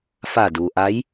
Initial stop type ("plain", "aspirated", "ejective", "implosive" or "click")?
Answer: plain